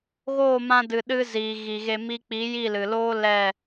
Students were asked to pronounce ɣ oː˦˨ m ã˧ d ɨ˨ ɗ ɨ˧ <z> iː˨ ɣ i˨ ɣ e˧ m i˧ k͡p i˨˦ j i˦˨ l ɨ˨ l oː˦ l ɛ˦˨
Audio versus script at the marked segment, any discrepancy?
no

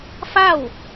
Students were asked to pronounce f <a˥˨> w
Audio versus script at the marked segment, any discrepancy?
no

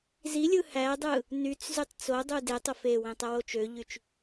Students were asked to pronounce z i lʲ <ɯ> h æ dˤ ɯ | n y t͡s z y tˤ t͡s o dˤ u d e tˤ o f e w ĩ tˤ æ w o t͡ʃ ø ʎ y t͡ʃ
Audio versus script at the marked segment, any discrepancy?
no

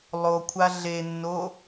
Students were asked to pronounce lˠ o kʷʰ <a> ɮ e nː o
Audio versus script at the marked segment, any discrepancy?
no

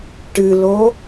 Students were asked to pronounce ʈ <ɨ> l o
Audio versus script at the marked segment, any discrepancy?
no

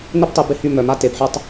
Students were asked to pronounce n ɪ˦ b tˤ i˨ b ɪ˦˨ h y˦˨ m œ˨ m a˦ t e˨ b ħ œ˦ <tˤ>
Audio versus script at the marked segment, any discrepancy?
no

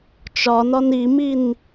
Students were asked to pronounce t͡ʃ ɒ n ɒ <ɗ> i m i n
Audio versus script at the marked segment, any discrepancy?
yes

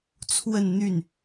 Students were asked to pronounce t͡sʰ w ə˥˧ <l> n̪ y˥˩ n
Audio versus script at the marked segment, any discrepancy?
yes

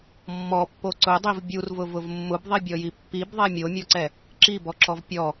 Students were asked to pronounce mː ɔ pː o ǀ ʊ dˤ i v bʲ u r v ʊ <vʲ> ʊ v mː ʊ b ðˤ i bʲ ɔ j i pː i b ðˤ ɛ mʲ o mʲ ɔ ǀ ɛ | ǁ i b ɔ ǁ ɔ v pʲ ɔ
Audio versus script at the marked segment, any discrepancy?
yes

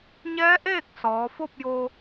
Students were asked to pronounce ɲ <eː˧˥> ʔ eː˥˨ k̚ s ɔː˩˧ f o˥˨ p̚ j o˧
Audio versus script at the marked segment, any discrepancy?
yes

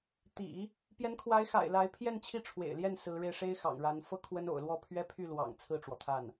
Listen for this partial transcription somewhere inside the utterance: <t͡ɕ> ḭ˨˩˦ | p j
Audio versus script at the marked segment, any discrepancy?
yes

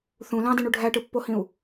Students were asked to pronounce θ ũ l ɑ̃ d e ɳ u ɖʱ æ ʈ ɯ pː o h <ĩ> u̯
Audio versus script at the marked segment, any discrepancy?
no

